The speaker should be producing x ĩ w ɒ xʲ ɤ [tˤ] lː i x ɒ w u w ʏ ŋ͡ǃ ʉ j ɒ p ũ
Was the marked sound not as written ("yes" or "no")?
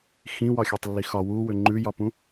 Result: no